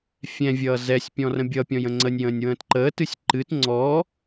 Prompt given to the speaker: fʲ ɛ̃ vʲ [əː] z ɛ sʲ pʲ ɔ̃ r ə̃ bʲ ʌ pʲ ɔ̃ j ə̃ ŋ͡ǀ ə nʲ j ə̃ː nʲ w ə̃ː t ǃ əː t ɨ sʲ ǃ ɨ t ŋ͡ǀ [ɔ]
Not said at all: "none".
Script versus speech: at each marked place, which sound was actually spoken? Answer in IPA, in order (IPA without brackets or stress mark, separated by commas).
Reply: ʌː, ɔ